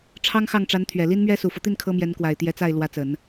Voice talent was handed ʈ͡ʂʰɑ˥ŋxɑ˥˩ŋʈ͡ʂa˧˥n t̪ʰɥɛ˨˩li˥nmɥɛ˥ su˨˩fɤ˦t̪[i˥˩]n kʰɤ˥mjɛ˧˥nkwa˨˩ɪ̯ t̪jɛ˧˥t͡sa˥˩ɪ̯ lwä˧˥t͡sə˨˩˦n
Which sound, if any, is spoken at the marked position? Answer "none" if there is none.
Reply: i˥˩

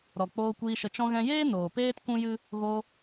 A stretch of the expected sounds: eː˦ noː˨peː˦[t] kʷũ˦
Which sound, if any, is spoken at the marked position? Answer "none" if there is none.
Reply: t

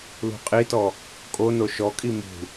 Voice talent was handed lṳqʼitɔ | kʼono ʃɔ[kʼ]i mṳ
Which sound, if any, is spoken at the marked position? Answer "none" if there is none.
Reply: kʼ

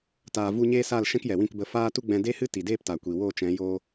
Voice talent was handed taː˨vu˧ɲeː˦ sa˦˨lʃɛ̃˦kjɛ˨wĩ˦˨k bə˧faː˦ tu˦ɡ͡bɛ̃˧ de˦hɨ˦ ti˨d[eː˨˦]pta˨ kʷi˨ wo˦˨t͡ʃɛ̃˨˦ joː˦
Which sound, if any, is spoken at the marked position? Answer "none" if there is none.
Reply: eː˦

